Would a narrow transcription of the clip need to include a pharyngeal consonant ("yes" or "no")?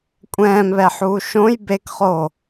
yes